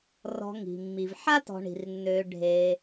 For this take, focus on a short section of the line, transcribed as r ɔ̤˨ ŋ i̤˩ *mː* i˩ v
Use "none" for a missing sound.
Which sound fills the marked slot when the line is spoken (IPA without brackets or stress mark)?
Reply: mː